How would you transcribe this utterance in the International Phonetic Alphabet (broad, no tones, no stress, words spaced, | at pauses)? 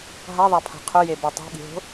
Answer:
ɦaðˤapʰa̤ qʰʊjebo tˤɛ̤ɠi̤ɦo̤